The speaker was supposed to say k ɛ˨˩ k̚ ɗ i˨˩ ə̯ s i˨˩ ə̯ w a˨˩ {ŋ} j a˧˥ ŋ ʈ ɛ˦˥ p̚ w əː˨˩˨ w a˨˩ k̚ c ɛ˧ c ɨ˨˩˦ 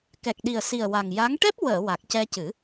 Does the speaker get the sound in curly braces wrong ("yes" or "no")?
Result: no